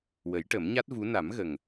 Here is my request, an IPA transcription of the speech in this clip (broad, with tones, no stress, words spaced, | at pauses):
wə˨˩˦jʈə˨˩˦mɲa˦˥t̚vu˧˥ na˨˩˦mɣə˨˩ŋ